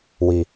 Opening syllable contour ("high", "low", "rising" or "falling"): low